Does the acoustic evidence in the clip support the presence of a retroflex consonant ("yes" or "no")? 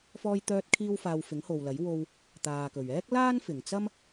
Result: no